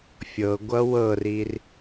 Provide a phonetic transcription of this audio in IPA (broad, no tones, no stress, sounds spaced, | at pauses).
fʲ ɤ ɡʷ ʌ w ɤ r i r